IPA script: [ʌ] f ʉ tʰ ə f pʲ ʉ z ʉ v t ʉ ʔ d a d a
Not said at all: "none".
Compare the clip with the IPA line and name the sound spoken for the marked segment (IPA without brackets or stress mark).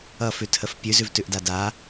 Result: ʌ